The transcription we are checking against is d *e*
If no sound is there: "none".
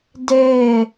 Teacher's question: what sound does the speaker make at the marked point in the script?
e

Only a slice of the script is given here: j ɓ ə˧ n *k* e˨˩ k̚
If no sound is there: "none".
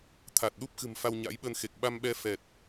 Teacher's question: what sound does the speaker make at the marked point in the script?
x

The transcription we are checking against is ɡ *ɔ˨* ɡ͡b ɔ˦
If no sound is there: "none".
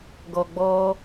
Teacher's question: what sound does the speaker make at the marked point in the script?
ɔ˨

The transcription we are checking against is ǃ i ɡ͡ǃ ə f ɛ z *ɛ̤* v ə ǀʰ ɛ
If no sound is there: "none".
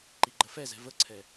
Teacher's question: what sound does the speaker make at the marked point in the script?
ɛ̤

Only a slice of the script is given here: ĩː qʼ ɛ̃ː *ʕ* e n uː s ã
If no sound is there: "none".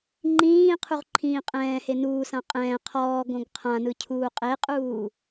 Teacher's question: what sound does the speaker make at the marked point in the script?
h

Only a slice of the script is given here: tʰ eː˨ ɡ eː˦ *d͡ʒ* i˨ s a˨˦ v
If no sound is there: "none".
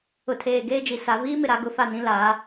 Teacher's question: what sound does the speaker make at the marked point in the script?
d͡ʒ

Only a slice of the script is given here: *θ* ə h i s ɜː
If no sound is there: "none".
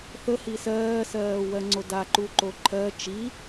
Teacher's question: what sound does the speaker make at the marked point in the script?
θ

